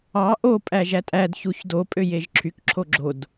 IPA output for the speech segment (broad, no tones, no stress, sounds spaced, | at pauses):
ɑ ʔ o pʼ æ ʒ æ tʼ æ d ç u ç d o pʼ ø j e ʒ ǁʰ y k ǁʰ o ɡ͡ǁ o d